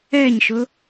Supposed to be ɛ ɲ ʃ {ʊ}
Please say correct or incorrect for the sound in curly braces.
correct